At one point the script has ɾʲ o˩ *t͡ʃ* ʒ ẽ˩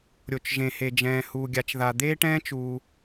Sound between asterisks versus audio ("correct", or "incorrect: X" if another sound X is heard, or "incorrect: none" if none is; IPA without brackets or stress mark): correct